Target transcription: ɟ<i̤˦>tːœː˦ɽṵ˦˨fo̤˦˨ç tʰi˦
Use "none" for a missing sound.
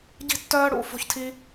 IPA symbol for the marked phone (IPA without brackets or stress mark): i̤˦